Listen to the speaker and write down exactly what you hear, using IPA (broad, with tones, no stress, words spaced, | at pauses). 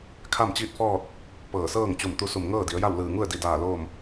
kʰa˥˨mt͡ɕiː˥˨t̚fɔː˥˨t̚ | pɤː˧˩sɤː˥˨ŋ t͡ɕu˧˩mt̪u˧su˧˩m ŋɤː˥˨di˩˧ə̯ja˥˨w lɯː˧˩ŋu˥˨ə̯di˧˩daː˧˩ loː˥˨m